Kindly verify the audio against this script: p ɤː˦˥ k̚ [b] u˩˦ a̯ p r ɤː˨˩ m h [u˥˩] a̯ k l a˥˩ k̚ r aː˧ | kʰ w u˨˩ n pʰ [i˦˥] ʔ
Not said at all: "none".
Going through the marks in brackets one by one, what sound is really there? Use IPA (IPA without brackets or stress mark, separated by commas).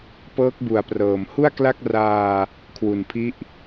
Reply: b, u˥˩, i˦˥